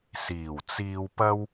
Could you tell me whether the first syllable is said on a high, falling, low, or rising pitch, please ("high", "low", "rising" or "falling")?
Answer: low